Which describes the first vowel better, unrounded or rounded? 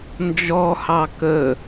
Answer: rounded